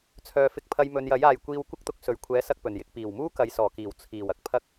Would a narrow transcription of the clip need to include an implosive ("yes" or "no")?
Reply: no